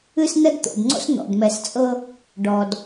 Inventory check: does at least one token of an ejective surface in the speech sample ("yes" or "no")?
yes